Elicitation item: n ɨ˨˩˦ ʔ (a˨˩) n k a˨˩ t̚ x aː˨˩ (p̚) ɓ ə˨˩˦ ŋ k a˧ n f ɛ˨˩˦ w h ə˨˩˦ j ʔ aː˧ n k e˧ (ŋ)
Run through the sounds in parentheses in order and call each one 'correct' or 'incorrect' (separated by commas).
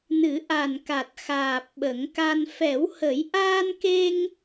correct, correct, correct